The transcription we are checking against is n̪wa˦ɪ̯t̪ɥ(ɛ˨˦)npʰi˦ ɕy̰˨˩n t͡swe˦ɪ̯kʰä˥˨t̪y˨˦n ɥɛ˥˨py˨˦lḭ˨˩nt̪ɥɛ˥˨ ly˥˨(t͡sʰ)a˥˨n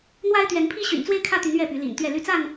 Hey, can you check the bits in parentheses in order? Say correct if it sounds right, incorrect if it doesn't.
correct, incorrect: t͡s

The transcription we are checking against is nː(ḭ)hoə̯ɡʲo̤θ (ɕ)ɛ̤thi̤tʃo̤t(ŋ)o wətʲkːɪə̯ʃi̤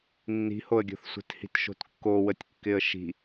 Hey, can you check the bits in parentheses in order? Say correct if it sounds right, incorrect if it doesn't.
incorrect: i̤, incorrect: sʷ, incorrect: kː

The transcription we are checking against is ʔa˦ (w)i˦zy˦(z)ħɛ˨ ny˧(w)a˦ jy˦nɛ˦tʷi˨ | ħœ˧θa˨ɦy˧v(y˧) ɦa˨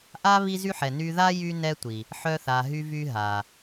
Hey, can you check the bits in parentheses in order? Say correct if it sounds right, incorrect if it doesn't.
incorrect: β, incorrect: none, incorrect: ð, correct

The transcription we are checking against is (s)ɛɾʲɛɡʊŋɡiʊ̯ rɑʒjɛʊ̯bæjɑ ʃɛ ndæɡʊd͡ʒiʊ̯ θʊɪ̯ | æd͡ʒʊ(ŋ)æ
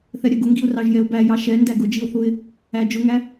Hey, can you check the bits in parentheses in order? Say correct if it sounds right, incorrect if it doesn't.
incorrect: θ, correct

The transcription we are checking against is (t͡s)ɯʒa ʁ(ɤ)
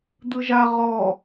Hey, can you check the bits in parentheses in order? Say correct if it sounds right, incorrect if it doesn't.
incorrect: d̪, incorrect: ɔ

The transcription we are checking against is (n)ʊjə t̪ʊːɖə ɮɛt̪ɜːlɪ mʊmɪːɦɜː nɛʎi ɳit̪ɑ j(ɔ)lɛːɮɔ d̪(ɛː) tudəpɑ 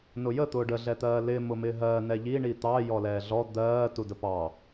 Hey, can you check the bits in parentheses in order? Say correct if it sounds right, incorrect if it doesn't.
correct, correct, incorrect: ɜː

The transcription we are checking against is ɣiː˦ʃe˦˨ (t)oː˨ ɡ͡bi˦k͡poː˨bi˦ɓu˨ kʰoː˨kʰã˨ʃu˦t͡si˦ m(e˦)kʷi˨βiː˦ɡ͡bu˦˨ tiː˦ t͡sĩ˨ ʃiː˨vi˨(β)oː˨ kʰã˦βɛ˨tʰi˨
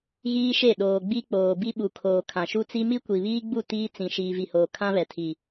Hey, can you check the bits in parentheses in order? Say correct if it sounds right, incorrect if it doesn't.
incorrect: ɗ, incorrect: i˦, incorrect: h

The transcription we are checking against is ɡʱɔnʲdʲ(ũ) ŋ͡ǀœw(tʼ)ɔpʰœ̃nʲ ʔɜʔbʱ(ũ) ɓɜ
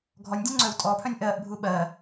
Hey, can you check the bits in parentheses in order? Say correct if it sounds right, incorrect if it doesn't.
correct, correct, incorrect: u

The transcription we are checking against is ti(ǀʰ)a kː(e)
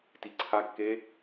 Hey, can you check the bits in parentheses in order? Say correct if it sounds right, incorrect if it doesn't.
correct, correct

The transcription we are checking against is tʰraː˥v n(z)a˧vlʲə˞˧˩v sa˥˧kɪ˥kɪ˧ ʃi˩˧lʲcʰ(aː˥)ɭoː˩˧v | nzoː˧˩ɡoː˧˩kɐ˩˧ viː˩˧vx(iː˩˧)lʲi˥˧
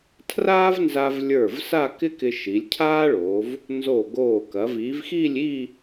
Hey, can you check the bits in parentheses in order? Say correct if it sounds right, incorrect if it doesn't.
correct, correct, incorrect: iː˥˧

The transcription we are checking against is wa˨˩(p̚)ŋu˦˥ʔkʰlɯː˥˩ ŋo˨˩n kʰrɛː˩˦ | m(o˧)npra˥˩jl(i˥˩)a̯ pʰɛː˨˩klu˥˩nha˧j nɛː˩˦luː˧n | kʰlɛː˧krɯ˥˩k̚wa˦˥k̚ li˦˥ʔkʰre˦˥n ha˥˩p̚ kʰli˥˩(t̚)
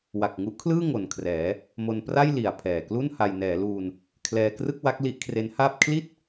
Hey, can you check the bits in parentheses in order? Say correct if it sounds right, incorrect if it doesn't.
incorrect: k̚, correct, incorrect: i˨˩, correct

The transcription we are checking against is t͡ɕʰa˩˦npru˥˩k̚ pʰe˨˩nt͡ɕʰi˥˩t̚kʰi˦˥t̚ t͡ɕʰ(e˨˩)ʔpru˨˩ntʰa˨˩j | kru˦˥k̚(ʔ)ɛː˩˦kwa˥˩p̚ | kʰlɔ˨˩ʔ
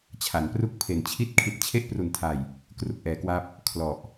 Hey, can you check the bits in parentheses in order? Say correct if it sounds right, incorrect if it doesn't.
incorrect: e˥˩, correct

